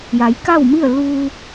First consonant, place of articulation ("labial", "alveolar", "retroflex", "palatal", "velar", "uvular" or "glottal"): palatal